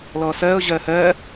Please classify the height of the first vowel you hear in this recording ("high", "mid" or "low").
mid